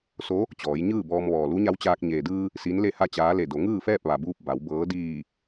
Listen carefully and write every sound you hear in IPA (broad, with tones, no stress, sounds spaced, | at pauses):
s o˧˥ | t͡ɕ ɔː˩˧ j ɲ ɯː˥˨ b ɔː˧ m ʋ ɔː˩ l u˧˥ ɲ a˧˥ w t͡ɕ aː˧ k̚ ɲ eː˩ d ɯː˧ | s i˧˥ n l e˥˨ h a˥˨ t͡ɕ aː˧˥ l e˧˩ d o˩˧ ŋ ɯː˥˨ f ɛː˥˨ p̚ ʋ a˩ b uː˧ p̚ b a˩˧ w b ɤː˧˥ d iː˧˩